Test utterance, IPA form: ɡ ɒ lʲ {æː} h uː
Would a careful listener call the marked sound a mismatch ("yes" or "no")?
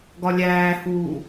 no